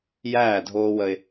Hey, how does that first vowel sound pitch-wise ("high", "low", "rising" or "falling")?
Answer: falling